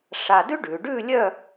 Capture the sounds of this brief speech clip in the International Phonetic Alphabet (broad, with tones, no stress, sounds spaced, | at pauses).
ʂ a˧ d ʉ˥ ɖ ʉ˩˧ ɖ ʉ˥˧ lʲ œ˥˧